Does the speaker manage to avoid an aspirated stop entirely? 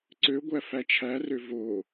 no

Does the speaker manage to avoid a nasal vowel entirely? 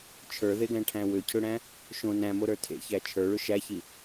no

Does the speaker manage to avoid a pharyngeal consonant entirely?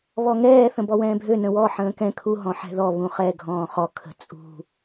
no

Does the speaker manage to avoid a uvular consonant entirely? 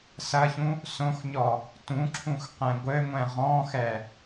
no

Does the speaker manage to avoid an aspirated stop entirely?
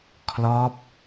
no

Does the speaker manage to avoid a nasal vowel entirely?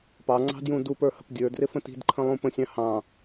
no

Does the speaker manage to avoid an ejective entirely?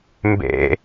yes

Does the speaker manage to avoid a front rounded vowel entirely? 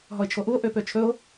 no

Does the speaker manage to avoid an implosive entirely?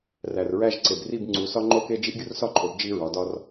yes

